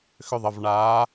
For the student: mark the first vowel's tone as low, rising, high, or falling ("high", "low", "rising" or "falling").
falling